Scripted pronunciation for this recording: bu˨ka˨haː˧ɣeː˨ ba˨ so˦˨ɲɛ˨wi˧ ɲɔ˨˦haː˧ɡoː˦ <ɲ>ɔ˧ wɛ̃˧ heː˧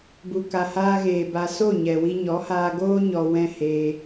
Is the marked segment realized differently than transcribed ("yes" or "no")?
no